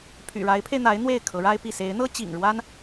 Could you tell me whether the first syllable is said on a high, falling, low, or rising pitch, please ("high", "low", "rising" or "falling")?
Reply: low